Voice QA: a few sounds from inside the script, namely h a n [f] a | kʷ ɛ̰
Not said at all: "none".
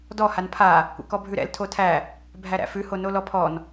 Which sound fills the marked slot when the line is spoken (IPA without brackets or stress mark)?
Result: pʰ